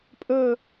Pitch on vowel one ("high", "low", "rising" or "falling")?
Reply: falling